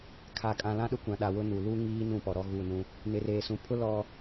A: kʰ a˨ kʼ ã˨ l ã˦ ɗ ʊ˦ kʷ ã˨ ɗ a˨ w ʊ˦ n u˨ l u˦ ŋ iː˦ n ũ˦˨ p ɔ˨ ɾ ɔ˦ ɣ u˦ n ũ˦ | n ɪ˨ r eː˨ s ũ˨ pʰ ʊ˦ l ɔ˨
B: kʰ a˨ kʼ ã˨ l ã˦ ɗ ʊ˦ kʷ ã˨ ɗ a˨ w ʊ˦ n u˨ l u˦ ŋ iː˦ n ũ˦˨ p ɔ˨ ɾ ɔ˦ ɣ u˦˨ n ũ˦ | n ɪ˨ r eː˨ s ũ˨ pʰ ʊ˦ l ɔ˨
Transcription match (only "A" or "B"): B